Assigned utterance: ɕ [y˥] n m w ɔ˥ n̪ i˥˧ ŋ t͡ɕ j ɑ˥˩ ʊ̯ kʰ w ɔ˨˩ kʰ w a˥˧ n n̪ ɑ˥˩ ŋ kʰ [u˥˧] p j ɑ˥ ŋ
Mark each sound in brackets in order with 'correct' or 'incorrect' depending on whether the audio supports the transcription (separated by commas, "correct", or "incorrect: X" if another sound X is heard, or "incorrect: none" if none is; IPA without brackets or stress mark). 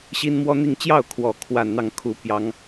incorrect: i˥, incorrect: u˥